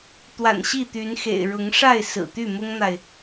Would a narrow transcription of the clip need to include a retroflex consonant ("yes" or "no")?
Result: yes